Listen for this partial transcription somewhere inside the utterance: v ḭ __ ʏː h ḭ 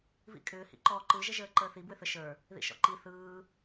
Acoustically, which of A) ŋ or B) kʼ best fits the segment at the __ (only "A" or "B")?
B